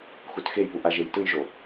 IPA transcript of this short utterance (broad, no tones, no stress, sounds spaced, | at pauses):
x u t x e j p u ʔ a ʒ e j t ɯ j ʒ o